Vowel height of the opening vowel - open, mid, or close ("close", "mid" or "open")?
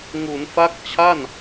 close